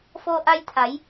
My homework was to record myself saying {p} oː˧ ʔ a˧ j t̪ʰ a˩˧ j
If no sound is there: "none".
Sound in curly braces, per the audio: f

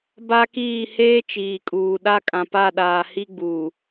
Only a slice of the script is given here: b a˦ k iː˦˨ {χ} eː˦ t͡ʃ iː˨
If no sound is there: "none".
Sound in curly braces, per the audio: h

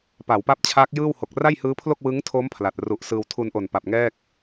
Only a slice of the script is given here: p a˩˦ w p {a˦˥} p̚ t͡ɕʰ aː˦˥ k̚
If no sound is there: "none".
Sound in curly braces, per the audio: a˦˥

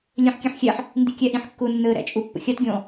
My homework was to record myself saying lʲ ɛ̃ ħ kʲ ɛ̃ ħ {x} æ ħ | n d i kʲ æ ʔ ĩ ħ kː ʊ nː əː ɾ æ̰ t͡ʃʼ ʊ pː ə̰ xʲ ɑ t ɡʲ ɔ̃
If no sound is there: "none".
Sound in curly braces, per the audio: xʲ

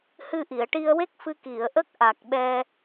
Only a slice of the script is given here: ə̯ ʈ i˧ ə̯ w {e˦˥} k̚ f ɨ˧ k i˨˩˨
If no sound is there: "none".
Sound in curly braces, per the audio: e˦˥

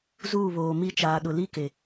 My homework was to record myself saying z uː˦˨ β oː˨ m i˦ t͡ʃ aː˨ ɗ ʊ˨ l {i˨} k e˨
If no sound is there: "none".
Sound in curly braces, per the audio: i˦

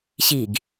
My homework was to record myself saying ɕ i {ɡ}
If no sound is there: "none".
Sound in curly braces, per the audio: ɡ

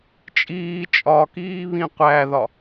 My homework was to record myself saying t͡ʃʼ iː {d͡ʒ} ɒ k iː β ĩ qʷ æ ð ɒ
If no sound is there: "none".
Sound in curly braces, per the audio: t͡ʃʼ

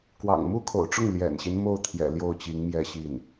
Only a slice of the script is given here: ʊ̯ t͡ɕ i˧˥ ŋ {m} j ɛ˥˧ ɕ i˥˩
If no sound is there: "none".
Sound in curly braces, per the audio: m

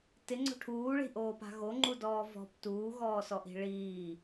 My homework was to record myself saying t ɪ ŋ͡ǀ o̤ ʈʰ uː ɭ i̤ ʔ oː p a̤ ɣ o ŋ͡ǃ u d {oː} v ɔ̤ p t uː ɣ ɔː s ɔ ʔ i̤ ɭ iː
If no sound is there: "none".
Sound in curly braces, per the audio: ɔː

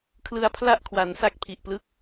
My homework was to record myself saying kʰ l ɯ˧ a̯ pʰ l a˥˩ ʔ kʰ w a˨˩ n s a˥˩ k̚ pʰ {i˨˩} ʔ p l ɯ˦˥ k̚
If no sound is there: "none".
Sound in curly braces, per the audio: i˨˩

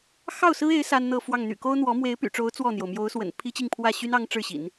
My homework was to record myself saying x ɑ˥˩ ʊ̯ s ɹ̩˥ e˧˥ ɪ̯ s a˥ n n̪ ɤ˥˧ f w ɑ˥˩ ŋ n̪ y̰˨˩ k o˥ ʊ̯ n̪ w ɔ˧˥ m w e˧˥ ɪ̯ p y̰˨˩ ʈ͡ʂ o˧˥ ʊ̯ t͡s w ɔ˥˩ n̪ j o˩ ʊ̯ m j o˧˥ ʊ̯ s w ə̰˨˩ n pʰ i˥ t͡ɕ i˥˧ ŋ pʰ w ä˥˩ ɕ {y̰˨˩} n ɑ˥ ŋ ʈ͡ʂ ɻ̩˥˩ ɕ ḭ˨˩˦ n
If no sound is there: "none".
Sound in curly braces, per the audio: y˥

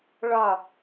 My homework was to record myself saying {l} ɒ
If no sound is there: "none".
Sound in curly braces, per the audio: ɭ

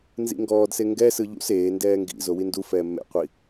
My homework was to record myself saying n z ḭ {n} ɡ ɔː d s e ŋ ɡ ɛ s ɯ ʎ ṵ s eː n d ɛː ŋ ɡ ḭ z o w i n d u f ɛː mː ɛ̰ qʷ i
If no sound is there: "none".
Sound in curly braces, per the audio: ŋ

